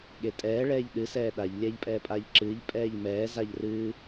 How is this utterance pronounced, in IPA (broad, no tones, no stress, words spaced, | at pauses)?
ɠetʼɛː ɭɛːʎɗɨ sɛːɗaʎ lʲɛːʎpʼɛːpʼaːʎǁɨːʎ pʼɛːʎmɛː zaʎrɨː